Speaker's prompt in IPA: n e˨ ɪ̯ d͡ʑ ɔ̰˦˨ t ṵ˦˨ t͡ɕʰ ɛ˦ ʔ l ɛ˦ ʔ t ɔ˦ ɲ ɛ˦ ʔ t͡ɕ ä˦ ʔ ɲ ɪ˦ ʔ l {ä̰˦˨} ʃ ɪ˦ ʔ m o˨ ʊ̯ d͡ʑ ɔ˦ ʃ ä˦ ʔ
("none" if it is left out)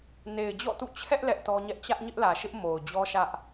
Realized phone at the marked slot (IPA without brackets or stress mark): ä˨